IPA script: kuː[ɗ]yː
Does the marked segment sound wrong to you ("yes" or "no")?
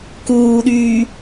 no